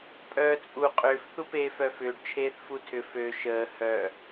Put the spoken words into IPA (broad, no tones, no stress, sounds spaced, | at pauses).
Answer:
pʼ œː t͡sʼ u qʼ ʏː f θ u p eː f œ f ʏː ɖ t͡ʃʰ eː θ f u tʰ ʏ f ø ʃ əː h œ